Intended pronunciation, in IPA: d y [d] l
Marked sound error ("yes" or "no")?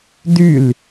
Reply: yes